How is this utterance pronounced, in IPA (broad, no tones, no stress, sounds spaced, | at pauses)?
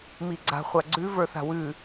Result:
m i ɡ͡ǀ a̤ χʷ a ɡ͡ǀ ʉ v ə˞ θ a̤ w ʉ